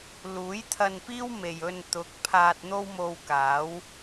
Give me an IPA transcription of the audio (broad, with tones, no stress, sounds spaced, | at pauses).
l uː˨˥ j t̪ʰ ɐ˧ n p iː˥ w m e˨ j ɵ˧ n t̪ ʊ˨ k̚ pʰ aː˧ t̚ n̪ o˥ w m o˧ w k aː˨˥ w